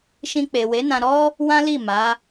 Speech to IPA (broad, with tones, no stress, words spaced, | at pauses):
ʃĩ˧k͡pe˨ we˨˦nã˧ɾɔ˦ | wã˦li˦˨ ma˨˦